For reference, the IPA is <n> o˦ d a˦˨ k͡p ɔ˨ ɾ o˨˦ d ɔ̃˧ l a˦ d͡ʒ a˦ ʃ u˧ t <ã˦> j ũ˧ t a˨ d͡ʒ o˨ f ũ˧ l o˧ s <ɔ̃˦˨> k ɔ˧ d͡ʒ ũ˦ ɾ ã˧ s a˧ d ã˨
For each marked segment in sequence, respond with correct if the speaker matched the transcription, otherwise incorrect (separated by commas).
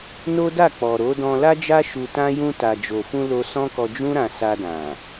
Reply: correct, correct, incorrect